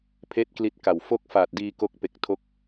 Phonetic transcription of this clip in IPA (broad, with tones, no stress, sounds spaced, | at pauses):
pʰ eː˥˩ t̚ k l i˦˥ t̚ k a˨˩ w f o˥˩ k̚ f aː˨˩ t̚ d iː˧ k o˦˥ k̚ p e˨˩ k̚ tʰ o˦˥ k̚